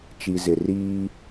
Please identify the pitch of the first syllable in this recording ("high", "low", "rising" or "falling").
low